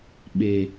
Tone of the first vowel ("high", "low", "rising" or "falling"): low